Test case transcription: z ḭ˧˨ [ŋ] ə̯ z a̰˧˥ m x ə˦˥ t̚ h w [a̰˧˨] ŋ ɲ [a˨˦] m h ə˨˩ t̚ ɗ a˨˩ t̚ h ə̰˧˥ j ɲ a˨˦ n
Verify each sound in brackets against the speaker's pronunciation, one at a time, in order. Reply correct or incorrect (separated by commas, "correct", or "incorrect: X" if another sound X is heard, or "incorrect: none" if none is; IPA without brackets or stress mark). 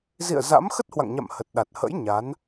incorrect: none, correct, incorrect: a̰˧˨